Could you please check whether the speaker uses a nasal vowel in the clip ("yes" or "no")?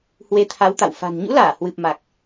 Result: no